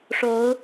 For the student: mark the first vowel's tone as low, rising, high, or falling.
rising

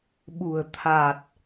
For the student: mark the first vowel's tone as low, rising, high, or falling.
low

